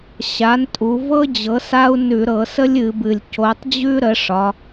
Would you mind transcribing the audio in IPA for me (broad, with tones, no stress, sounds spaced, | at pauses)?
ɕ a˩˥ n tʼ u˩˧ v ɤ˦ d͡ʑ ɤ˩˥ s a˦ u̯ n ʉ˧˩˧ ɾ ɤ˧˩˧ s ə˦ lʲ ɨ˩˧ b ɨ˨˩ lʲ c o˩˧ tˤ d͡ʑ ʉ˦ ɾ ə˩˥ ʂ ɒ˩˧